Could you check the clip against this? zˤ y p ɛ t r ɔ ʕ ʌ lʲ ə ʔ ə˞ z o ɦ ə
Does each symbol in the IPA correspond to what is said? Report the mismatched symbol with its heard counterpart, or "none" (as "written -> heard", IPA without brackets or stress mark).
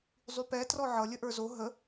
none